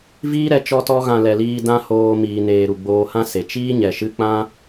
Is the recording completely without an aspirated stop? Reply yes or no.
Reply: yes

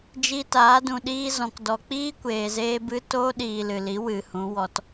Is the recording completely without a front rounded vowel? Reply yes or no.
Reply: yes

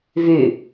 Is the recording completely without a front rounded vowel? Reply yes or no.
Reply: no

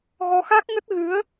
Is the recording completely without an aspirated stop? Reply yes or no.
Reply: yes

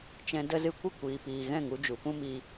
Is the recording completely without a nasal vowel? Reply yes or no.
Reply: no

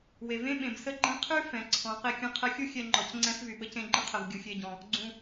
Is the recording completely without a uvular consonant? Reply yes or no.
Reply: no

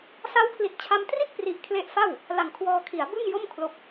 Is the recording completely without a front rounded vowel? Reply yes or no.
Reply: yes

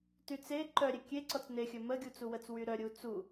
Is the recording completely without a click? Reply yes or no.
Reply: no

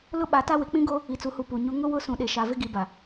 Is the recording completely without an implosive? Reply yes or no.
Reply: no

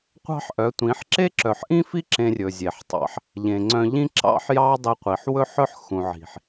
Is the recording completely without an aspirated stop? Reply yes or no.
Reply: yes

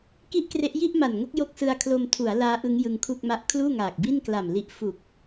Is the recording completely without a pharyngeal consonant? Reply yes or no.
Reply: yes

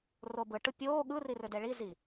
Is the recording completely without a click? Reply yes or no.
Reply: yes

